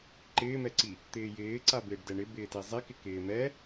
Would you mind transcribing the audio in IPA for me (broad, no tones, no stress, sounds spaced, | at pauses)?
ǃ ɪː m ɛ ǀ i | t̪ ɪː j ɪː ǀ a b ɪː ɖ d ɛ ɳ ɪ b ɪː t i zˤ i k ɪ k ɪː m ɛ